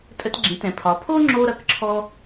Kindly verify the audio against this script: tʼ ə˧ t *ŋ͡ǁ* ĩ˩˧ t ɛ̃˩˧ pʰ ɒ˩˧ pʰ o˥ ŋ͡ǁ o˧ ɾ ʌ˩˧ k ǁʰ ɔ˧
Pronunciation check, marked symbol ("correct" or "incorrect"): incorrect